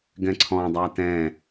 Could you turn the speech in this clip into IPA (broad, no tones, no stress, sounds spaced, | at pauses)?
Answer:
ɡ ɛ̃ ǀʰ ɔ̃ dˤ a t ɛ̃